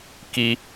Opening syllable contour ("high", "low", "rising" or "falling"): high